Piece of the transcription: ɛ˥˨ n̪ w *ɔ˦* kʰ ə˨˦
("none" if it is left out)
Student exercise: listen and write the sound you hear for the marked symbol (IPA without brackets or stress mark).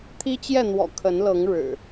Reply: ɔ̰˨˩